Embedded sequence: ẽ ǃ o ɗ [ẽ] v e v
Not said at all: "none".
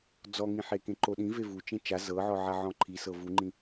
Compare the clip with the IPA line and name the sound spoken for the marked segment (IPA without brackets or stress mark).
ĩ